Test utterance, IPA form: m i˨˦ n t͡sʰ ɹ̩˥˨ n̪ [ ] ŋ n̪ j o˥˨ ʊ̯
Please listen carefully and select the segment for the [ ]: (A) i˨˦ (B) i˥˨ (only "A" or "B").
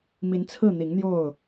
A